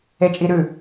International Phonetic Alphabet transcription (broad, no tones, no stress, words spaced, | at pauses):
et͡ʃʼiɾʉ